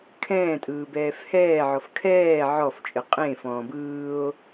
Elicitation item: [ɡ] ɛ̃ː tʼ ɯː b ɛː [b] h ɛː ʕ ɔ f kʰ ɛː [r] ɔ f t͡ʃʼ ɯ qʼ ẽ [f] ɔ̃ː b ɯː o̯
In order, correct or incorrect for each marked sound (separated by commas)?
incorrect, incorrect, incorrect, correct